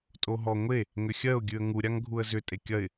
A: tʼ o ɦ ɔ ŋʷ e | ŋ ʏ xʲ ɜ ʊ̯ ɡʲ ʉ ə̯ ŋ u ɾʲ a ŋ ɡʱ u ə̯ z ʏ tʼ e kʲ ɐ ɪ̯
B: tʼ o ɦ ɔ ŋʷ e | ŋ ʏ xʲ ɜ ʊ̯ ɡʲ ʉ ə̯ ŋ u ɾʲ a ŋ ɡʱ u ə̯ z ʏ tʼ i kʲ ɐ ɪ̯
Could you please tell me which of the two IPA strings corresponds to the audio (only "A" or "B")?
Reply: A